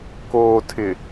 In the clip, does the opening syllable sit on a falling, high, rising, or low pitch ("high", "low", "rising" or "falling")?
low